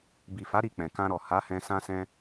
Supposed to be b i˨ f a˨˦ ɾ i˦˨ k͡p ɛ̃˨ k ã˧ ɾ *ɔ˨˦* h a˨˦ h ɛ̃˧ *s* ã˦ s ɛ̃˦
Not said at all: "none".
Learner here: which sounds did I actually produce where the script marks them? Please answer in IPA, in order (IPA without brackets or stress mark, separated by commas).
ɔ˨, s